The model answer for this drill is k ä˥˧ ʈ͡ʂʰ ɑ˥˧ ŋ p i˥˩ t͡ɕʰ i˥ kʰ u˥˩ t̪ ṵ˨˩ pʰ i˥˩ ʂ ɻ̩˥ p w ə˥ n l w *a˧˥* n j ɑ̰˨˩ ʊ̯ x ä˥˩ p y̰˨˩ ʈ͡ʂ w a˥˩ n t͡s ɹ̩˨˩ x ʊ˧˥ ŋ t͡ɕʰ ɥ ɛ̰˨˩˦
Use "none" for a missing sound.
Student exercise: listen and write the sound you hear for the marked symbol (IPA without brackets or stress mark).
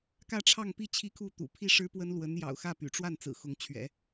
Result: ə˧˥